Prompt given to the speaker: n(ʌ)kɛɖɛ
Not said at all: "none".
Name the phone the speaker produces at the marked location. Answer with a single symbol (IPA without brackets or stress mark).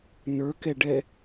ə˞